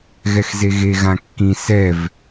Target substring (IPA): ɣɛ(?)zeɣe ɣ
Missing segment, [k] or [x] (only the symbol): x